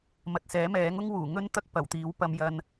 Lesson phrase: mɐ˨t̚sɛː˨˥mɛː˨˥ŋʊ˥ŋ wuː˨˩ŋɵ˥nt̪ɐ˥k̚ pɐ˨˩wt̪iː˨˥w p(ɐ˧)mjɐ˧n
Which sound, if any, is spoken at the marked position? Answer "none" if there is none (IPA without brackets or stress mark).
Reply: ɐ˧